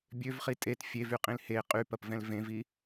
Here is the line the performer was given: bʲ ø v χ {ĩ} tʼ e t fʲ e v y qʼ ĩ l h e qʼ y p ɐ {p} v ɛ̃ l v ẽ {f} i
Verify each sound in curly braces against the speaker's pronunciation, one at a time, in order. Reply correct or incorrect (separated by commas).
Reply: incorrect, correct, incorrect